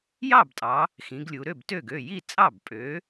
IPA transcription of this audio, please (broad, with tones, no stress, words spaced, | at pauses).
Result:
jɑ˥˩btʼɑ˩˧ | xĩ˩˧ɡlʲu˩˧ɾø˥˩btø˥˩ɡ ø˥˩ ji˥˩ t͡sʼɑ˥˩b pʼø˩˥